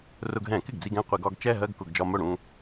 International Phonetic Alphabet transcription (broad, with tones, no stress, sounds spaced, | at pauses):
r ʊ˧ ɡ ɦ ɛ̃˧˩˧ k ɪ˥˩ ɡ d͡z i˧ ɡ ɛ̃˥˧ qʷ i˧˩˧ ɡ ɒ˥˧ ɡ t͡ʃ ɛ˥˧ ɦ ɜ˥˧ ɡ k ʊ˧˩˧ ɡ d͡ʒ ɒ˧ m ʊ˥˩ ɽ ũ˥˧